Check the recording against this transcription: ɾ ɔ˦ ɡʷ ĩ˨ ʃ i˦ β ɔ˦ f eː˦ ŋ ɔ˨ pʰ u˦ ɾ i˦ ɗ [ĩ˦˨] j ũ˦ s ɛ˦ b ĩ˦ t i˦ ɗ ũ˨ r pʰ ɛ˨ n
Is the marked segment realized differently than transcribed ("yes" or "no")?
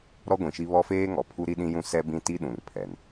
yes